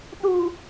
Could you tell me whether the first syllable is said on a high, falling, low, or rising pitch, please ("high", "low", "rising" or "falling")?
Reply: low